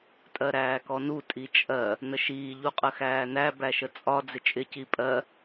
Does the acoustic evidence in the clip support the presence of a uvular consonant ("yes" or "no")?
yes